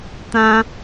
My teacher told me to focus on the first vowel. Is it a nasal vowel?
yes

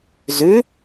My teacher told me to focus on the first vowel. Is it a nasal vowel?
no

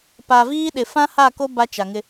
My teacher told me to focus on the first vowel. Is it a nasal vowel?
no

